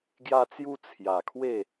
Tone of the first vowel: high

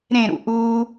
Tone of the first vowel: falling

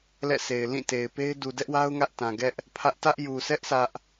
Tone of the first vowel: falling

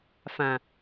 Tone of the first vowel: low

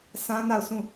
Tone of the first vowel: high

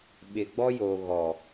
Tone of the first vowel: low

